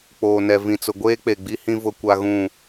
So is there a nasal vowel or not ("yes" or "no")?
yes